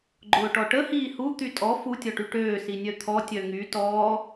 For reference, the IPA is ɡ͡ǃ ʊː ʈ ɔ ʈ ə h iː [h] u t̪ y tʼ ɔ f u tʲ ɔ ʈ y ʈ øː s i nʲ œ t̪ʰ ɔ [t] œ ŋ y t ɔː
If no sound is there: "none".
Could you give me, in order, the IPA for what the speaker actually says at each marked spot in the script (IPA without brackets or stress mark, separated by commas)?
h, tʲ